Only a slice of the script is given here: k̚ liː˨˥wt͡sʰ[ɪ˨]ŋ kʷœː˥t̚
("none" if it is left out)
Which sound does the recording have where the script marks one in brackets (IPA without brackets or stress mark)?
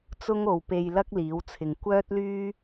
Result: ɪ˨